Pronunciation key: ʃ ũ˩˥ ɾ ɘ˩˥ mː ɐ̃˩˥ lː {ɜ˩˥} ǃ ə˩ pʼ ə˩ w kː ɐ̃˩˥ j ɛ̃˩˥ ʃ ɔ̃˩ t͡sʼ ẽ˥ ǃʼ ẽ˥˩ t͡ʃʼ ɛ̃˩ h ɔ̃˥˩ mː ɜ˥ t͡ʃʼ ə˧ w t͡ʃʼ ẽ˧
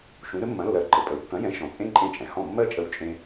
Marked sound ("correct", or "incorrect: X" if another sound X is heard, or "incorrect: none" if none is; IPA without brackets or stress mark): correct